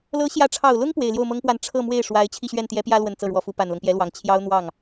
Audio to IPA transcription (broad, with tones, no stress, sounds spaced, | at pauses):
l ɤ˧˥ ɕ j ä˧˥ ʈ͡ʂʰ ɑ˨˩ ʊ̯ l ʊ˥ ŋ p w e˨˩ ɪ̯ l j o˥˩ ʊ̯ m ɤ˥ ŋ p w a˥˧ n ʈ͡ʂʰ ɤ˥˧ m w e˥˩ ɪ̯ ʂ w a˧˥ ɪ̯ t͡ɕʰ i˥˧ ɕ ɥ ɛ˥˩ n t̪ j ɛ˧˥ p j ä˥ l w ə˥˧ n t͡s ɤ˥˩ ɻ w ɔ˧˥ f u˧˥ p a˨˩ n l ɤ˦ ŋ p j ɛ˧˥ l w ɑ˨˩ ŋ t͡ɕʰ j ɑ˥ ʊ̯ n̪ w ɑ˥˩ ŋ